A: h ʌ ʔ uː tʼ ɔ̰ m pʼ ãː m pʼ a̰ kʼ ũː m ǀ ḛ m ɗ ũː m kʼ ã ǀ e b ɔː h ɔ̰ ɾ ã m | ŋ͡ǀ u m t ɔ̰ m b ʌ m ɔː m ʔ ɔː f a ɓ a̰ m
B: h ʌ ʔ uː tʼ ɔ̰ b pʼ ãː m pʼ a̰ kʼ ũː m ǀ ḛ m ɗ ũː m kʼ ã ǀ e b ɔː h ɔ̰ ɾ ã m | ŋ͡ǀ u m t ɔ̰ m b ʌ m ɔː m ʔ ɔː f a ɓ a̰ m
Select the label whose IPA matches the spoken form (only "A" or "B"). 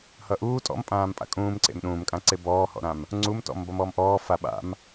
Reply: A